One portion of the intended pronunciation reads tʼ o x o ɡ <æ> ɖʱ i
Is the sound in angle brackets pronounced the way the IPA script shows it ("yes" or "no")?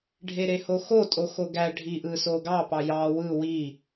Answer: yes